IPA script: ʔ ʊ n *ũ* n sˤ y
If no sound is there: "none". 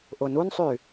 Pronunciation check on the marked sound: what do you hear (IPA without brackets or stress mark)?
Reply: u